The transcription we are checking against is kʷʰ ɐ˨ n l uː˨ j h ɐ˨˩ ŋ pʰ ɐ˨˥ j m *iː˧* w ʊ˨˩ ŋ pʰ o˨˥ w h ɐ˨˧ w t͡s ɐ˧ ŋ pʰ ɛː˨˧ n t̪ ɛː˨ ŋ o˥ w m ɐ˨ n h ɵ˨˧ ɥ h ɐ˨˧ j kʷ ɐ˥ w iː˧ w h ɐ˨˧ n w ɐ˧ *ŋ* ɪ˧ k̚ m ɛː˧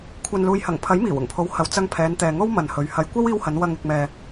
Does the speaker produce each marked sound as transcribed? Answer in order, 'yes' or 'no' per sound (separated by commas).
no, yes